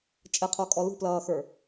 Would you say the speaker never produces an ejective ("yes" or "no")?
no